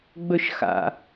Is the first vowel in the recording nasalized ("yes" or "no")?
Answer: no